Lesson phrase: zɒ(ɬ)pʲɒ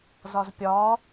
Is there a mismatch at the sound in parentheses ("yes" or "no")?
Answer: yes